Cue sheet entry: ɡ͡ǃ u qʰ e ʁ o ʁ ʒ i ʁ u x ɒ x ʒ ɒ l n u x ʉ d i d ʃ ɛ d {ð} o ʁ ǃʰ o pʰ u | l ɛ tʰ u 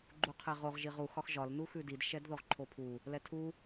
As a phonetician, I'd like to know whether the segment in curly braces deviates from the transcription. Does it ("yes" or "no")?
no